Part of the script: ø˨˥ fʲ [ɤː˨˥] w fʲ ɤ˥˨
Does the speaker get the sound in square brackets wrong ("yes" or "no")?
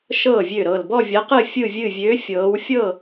no